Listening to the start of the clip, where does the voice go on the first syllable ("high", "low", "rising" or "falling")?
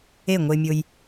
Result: falling